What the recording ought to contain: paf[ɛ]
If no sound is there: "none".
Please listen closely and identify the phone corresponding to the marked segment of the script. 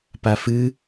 ɨ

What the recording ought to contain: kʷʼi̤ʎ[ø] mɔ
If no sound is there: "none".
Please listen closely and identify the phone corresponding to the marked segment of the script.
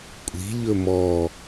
ɵ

